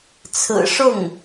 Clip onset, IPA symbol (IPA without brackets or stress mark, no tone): t͡sʰ